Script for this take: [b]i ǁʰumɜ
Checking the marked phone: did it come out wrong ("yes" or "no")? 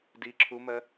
yes